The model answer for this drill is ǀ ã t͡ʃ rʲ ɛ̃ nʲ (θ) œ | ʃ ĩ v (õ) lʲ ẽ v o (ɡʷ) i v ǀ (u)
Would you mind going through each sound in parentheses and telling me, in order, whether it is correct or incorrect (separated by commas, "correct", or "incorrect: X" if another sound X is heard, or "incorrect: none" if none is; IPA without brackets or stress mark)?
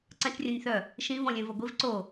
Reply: correct, incorrect: ɔ̃, correct, incorrect: o